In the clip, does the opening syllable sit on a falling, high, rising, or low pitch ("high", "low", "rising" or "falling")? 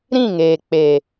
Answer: falling